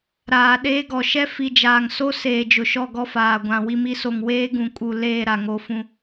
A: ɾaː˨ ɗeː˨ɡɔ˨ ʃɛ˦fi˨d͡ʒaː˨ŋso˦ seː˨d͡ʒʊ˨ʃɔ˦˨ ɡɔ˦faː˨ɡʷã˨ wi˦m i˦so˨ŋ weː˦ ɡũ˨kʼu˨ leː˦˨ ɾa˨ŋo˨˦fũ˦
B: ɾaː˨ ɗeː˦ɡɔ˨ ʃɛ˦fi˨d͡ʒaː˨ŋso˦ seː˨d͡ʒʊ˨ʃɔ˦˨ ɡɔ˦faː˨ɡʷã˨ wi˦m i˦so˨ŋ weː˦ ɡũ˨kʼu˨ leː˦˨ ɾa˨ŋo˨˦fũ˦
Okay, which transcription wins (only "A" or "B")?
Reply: B